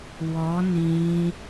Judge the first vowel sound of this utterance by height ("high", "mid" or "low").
mid